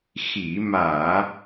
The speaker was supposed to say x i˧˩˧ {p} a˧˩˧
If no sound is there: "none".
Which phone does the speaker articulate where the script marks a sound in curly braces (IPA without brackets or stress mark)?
m